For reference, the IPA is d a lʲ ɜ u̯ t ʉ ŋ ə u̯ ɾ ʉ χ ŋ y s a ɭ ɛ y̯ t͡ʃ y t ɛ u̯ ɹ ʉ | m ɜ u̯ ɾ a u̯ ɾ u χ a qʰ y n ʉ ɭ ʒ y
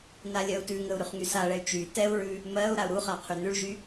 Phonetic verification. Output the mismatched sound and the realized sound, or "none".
d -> n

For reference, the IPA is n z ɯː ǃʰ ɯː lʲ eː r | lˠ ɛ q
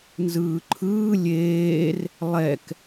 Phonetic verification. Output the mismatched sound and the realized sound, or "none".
q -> k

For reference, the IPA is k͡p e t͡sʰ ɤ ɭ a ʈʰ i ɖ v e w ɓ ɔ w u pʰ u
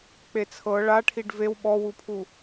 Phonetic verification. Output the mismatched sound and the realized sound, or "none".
none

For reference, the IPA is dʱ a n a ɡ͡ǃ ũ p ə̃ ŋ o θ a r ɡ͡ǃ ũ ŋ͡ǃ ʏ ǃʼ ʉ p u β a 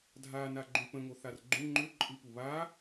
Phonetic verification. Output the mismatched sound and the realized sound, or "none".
ʉ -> ɨ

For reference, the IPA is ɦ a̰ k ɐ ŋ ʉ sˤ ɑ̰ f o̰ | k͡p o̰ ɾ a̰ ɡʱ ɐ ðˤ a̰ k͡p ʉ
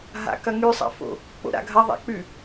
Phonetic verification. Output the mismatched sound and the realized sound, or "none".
ɑ̰ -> a̰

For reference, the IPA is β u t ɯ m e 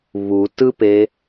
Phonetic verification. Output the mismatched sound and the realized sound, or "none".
m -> p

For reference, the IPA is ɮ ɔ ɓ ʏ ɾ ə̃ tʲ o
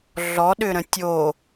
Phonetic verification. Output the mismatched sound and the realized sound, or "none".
ɓ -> ɗ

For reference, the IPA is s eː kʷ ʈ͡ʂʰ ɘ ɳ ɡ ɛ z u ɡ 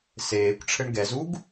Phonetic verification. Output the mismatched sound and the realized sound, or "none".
none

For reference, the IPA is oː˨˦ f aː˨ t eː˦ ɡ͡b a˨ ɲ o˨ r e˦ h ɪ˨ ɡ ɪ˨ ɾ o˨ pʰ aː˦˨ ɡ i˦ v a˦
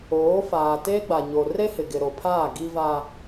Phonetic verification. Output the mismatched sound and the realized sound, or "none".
none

